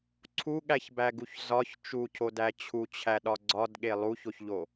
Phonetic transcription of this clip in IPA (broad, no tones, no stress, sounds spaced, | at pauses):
ǀʰ u ɠ æ ç b æ ɡ u ç z ɒ ç t͡ʃ u cʰ o d æ t͡ɕʰ u t͡ɕʰ æ ɗ ɒ ɡ͡ǀ ɒ d ɠ e lˠ u ç o ç ʎ o